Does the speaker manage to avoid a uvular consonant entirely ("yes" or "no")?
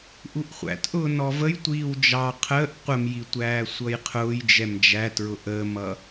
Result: no